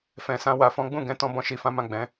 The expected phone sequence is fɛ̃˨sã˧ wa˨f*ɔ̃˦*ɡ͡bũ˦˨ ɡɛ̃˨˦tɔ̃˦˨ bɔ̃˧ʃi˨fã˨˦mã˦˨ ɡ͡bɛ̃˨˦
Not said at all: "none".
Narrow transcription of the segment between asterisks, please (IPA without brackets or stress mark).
ɔ̃˨˦